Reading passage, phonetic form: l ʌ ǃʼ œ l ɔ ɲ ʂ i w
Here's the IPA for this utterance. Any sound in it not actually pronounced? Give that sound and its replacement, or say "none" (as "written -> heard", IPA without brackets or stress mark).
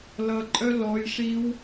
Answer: ɲ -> j